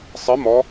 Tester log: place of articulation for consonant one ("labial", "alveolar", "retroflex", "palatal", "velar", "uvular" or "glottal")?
alveolar